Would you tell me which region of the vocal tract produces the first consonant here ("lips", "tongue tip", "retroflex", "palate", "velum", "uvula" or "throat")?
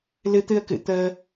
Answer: tongue tip